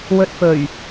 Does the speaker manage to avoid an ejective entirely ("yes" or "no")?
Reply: yes